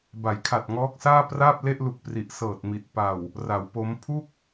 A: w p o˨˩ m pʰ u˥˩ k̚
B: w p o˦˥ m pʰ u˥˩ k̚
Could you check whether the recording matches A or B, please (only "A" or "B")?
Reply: B